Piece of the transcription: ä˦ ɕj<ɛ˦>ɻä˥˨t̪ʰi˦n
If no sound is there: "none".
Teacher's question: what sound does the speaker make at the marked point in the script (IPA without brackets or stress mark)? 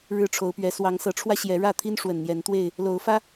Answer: ɛ˨˦